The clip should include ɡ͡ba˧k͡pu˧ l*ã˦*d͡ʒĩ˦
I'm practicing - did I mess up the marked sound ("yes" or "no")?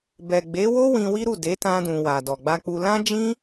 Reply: no